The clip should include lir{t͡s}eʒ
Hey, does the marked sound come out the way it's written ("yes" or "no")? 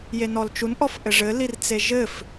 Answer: yes